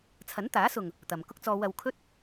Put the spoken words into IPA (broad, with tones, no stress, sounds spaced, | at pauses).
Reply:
t͡sʰ ɐ˨˥ n t̪ aː˨˥ s ʊ˨ ŋ | t̪ ɐ˨ m k ʊ˥ k̚ t͡s ɔː˧ w ɐ˨ w kʰ ɵ˧ t̚